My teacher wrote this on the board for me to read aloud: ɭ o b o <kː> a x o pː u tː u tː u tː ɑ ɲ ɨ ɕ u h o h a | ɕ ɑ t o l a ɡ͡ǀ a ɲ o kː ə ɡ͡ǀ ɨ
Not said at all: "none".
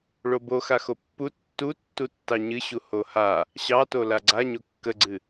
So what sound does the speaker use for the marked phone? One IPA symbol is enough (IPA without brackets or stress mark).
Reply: x